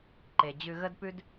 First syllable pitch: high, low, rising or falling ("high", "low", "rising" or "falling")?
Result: low